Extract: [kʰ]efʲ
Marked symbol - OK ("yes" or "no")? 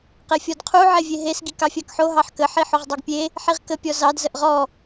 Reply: no